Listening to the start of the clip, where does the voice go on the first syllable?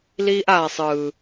high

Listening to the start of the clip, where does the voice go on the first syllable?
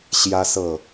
high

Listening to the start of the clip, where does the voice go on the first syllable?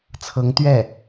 rising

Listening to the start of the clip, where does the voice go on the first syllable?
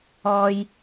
low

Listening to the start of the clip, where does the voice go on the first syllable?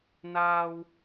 high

